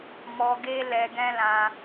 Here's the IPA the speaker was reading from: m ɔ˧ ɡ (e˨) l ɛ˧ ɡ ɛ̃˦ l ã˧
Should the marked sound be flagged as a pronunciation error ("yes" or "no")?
yes